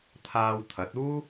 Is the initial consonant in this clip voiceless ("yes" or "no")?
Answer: yes